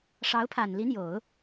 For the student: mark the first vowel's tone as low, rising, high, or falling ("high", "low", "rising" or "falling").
rising